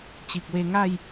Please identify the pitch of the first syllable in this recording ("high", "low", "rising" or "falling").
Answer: low